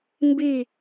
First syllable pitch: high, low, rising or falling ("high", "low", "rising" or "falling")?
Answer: falling